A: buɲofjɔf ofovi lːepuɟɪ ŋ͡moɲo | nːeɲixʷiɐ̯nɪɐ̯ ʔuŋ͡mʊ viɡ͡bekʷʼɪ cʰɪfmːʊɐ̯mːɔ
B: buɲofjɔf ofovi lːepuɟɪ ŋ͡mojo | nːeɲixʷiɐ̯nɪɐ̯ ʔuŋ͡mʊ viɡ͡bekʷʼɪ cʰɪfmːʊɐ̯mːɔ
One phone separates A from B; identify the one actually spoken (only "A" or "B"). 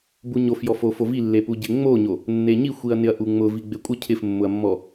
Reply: A